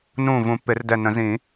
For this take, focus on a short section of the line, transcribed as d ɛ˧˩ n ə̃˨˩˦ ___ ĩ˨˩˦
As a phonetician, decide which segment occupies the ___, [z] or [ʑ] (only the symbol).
z